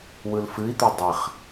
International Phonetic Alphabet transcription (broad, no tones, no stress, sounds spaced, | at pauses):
w ɯ l f ɨ i̯ t̪ œ dˤ ɛ χ